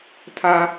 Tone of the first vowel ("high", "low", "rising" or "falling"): high